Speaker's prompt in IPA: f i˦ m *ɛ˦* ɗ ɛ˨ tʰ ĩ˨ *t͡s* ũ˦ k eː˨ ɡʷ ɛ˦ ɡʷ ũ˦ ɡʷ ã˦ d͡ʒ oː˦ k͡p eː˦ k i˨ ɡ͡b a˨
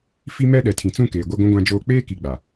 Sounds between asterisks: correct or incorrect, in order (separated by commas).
correct, correct